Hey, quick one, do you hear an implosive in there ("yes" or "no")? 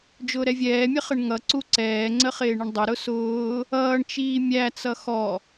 no